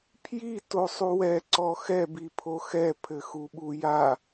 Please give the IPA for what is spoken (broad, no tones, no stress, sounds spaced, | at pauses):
pʰ j i t o sˤ u w ɛ ǀ ɔ x ɛ b i pʰ o x ɛ pʰ ɘ x u ɓ u j a